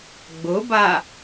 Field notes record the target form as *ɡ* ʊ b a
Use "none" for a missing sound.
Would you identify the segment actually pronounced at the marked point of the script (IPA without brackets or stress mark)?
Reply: ɡ͡b